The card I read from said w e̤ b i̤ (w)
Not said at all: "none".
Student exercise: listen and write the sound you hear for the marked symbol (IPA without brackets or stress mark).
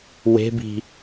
none